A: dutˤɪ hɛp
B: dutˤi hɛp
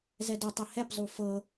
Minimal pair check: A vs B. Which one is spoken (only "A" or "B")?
B